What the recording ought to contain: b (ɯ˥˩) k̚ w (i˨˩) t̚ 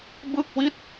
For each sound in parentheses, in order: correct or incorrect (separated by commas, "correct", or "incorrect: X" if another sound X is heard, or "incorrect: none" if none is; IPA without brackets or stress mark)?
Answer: correct, incorrect: i˥˩